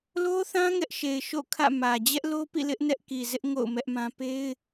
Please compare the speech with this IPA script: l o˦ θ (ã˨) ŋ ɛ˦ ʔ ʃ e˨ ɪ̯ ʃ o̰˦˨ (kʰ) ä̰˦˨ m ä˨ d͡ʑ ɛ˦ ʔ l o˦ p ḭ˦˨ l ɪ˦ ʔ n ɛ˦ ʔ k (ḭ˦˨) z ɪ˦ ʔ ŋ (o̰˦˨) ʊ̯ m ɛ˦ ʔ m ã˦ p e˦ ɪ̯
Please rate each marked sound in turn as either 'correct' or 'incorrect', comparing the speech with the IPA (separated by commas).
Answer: incorrect, correct, incorrect, correct